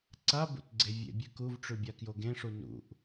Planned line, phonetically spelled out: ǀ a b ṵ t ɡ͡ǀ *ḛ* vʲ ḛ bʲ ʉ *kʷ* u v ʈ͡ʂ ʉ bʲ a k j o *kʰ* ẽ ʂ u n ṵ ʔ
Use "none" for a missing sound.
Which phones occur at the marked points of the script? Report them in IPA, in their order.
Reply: e, k, ɡ

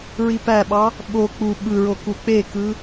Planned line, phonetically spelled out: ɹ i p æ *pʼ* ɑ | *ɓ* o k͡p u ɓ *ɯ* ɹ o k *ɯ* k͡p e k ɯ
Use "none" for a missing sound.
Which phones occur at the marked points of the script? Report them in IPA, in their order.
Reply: ɓ, ɓ, ɯ, u

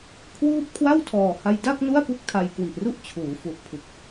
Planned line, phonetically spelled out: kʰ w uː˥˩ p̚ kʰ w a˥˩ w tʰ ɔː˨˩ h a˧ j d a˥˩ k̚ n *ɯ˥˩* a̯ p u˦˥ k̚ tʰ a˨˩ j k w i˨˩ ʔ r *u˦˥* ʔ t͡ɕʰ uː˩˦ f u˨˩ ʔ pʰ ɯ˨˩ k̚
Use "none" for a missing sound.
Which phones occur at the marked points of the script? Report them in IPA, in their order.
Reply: u˥˩, u˥˩

